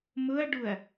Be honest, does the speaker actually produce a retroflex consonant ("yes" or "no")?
yes